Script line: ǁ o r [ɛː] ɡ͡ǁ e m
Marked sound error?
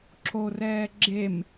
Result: no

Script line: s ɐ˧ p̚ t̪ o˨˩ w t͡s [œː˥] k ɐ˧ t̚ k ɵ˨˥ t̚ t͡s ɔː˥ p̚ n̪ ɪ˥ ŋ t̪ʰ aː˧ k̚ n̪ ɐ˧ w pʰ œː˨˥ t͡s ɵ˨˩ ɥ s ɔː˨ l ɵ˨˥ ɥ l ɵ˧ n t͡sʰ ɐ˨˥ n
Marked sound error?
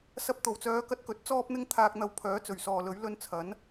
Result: yes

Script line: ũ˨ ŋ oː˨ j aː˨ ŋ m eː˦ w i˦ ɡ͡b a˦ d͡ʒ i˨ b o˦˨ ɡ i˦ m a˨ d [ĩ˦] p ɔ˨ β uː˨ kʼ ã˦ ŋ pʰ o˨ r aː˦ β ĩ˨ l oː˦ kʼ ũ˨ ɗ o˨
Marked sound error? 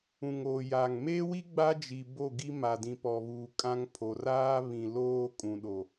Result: yes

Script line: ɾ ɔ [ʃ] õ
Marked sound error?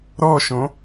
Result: no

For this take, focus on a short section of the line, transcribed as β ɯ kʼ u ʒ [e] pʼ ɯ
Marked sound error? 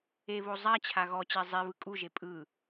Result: no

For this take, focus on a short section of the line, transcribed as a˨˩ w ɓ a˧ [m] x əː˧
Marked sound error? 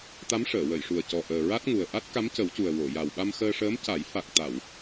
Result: no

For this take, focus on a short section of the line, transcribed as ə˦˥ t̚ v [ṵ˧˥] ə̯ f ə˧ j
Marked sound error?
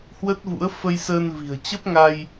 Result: no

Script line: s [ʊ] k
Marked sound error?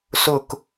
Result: no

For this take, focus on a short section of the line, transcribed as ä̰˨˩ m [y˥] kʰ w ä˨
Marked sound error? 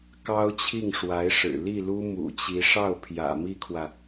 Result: yes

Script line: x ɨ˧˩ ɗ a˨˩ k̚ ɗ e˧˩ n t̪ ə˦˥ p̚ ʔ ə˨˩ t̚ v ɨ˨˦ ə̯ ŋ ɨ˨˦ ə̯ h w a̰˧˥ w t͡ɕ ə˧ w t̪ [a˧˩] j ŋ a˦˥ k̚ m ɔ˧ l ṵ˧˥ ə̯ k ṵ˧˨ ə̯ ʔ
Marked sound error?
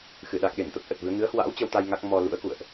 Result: yes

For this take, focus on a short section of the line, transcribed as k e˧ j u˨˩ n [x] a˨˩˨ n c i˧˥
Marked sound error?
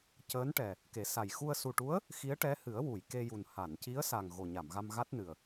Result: yes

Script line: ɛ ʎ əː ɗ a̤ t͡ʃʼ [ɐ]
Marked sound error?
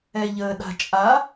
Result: yes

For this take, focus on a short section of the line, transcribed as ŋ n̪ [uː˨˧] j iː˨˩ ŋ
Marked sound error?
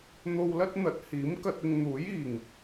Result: yes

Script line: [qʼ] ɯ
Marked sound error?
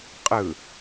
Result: no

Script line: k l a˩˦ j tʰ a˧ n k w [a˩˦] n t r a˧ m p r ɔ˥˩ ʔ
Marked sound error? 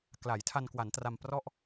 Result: no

